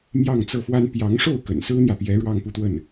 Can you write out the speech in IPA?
m j ɑ˥˧ ŋ t͡s ɤ˥˩ f w a˥ n p j ɑ˧˥ ŋ ʂ o˥˩ ʊ̯ k ə̰˨˩ n s ɹ̩˥ n̪ j ä˨ p j ɛ˧˥ ɻ w ɑ˥˧ ŋ p u˥˧ t̪ w ə˥˩ n

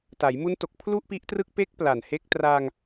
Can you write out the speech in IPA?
t a˩˦ j m u˦˥ n t o˨˩ k̚ pʰ l u˥˩ ʔ p i˦˥ ʔ t r ɯ˥˩ k̚ p e˦˥ k̚ p l a˨˩ n h e˦˥ k̚ t r a˧ ŋ

